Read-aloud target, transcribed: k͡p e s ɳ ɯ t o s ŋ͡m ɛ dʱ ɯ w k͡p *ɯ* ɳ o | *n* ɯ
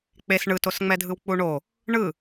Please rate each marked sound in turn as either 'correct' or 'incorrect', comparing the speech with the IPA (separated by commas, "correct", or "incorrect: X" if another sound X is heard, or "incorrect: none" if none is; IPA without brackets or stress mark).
incorrect: u, incorrect: ɳ